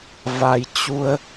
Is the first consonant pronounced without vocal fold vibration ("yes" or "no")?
no